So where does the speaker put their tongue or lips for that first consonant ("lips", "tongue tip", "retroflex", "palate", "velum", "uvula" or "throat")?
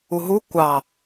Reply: throat